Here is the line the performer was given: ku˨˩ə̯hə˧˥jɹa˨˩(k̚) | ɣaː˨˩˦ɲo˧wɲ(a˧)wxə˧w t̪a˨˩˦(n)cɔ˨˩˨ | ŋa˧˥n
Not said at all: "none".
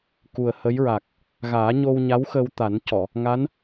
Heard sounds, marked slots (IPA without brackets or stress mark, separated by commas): k̚, a˧˥, n